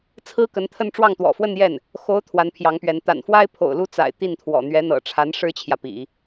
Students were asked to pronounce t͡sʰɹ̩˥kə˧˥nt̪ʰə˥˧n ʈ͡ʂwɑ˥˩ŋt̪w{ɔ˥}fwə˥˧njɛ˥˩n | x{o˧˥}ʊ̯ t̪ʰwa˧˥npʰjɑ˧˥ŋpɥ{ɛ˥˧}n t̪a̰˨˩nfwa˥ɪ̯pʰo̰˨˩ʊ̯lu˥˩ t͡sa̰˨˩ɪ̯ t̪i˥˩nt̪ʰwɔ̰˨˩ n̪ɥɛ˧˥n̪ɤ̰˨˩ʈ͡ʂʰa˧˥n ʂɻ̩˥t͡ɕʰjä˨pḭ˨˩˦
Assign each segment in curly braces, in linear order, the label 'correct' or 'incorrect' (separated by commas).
incorrect, correct, incorrect